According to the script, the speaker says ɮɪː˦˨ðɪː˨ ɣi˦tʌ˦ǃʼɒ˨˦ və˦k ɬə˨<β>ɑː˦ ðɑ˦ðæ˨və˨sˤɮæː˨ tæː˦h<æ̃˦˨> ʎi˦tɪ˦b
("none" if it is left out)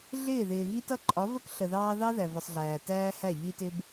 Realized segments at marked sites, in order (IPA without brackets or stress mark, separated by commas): ð, æ˦˨